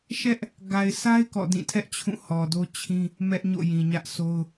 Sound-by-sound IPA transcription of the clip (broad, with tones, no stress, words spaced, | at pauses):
ʃɛ˦ʔ | ɡa˨ɪ̯sʰa˦ɪ̯ kɔ̰˦˨dĩ˦˨ tʰɛ˦ʔ t͡ɕʰũ˦˨hɔ˨ do˦t͡ɕʰĩ˦ | mɛ˦ʔɲo̰˦˨ jĩ˨ɲä˦ʔso˦ʊ̯